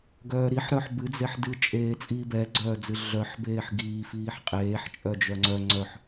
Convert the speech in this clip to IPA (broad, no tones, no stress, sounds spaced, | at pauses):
ɡ œː ɾ i ħ ɾ œ ħ b ɨ d͡z e ħ d ɨ t͡ʃʼ eː t͡sʼ iː b ɛ ɡ͡ǀ œː d͡z ɨ ɮ œ ħ b eː ħ ɡ iː f iː ħ qʼ eː ħ t͡ʃʼ œ d͡ʒ œ ŋ͡ǀ œ ŋ͡ǀ œ ħ